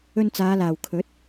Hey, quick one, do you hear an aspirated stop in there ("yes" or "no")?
yes